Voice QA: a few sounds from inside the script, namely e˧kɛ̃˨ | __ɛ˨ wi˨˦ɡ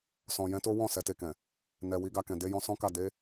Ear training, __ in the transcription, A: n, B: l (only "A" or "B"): A